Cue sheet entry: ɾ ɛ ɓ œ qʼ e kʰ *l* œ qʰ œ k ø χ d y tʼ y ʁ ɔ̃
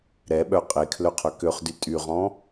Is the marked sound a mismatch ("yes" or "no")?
no